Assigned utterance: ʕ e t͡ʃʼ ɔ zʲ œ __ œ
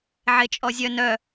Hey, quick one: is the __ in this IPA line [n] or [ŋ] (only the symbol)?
n